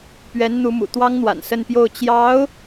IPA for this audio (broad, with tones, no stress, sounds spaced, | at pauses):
p ɥ ɛ˧˥ n n̪ u˧˥ m ṵ˨˩ t̪ w ɑ˥ ŋ n̪ w a̰˨˩ n s ə˥˧ n p j o˥˩ ʊ̯ t͡ɕ j ɑ˧˥ ʊ̯